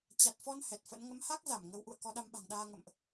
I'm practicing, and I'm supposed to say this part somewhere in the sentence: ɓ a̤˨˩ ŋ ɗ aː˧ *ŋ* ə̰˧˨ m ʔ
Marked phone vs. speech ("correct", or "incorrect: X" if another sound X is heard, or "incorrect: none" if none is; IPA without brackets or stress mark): correct